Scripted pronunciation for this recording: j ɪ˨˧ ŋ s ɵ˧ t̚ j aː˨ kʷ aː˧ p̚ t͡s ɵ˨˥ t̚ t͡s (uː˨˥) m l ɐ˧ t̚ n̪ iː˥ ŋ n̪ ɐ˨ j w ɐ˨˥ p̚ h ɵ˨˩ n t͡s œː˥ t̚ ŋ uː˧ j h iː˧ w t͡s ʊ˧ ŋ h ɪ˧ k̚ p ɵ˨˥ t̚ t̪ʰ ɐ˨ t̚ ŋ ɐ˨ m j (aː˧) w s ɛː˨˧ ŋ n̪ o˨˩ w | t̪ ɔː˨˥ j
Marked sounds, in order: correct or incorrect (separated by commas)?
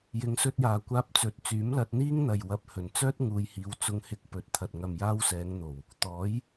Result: incorrect, correct